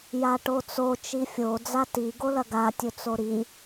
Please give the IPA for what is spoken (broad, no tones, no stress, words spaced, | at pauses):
jaʈot͡so t͡ʃifʲo d͡zati ɡolɐɡa tʲɵt͡soɾi